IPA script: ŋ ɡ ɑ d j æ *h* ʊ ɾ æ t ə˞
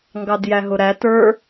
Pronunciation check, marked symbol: incorrect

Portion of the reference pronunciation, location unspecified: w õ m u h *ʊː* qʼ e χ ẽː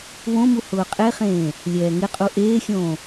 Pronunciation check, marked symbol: correct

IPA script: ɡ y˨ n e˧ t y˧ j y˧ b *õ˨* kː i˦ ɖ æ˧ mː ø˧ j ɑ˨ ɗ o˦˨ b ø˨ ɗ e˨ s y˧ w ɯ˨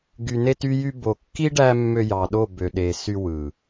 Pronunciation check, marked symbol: incorrect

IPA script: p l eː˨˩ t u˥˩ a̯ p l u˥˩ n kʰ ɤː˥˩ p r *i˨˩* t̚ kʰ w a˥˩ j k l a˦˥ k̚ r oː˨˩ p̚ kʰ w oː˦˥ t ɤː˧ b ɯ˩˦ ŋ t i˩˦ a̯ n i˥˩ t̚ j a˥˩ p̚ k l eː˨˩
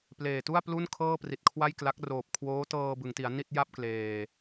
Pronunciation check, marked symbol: correct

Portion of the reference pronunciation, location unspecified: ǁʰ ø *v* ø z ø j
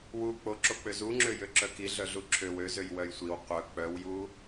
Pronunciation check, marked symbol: incorrect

